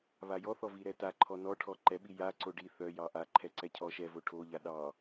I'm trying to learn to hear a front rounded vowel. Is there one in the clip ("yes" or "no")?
yes